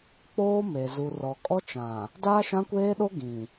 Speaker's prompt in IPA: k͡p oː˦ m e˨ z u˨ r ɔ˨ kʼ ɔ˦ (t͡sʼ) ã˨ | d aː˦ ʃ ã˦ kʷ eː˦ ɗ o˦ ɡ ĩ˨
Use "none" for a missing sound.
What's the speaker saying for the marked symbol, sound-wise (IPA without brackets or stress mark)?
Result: t͡ʃ